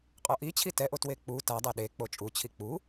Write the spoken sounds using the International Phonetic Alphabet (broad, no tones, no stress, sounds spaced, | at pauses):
qʼ ɔ ʔ i t͡ɕʰ i t ɛ ʔ o t w e k͡p u t a dˤ ɛ ɗ e k͡p o t͡ʃʼ u t͡ɕʰ i k͡p u